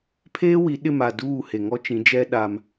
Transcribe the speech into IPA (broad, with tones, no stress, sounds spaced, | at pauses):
pʰ eː˦ w i˨˦ ɗ ɪ˦˨ m a˨ d uː˦˨ h e˨ ŋ ɔ˦ t͡ʃ ĩ˨˦ d͡ʒ ɛ˦ ɗ a˦ m